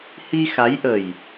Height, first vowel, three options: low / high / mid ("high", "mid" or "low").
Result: high